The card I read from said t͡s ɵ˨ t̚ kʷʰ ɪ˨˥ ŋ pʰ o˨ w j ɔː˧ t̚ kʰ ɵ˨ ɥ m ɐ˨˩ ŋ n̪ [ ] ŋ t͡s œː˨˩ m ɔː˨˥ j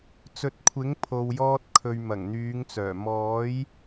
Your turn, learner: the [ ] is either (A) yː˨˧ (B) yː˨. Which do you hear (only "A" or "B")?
A